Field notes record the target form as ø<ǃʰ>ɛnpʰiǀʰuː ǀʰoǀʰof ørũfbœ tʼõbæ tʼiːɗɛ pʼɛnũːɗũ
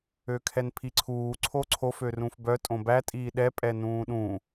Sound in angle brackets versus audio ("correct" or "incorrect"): incorrect